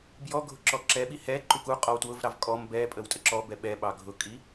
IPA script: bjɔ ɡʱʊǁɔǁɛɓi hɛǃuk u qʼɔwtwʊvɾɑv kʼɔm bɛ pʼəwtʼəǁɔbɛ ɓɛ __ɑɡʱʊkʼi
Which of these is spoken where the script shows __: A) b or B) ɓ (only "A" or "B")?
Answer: B